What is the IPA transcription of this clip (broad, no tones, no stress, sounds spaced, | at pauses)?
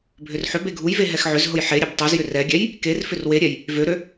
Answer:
bʱ ʏ r ħ ʏ b e ɡʱ u j v e ɦ ɛ x ʕ ʏ z ɦ ʊ j ħ e ɾʲ e b tˤ u z j ʏ r ɛ ɡʲ ɛ j | k e r f ʏ r w e ɾʲ ɛ j | v ø ɾ ø